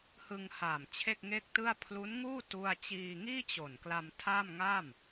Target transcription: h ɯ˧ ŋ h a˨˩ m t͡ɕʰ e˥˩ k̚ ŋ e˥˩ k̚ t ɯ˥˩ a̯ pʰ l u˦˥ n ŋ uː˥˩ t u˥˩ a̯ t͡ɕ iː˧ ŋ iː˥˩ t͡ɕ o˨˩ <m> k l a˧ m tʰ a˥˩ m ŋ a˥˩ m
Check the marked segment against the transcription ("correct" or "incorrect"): incorrect